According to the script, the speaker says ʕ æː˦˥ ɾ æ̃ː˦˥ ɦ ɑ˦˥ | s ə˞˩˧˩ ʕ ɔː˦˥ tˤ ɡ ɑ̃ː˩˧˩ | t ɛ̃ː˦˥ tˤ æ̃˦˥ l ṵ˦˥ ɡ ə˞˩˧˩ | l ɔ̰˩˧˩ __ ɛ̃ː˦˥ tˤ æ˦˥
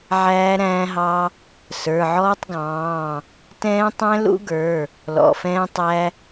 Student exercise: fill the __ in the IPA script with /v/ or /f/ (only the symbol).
f